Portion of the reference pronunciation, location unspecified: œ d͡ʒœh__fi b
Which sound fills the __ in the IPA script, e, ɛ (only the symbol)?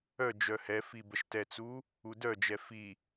ɛ